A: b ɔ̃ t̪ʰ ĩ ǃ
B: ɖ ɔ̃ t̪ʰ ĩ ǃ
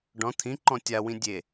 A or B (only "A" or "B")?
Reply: B